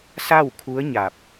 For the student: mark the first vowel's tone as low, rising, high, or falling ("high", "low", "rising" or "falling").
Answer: falling